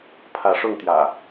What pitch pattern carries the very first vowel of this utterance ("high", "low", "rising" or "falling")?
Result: rising